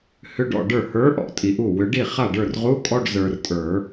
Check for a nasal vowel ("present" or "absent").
absent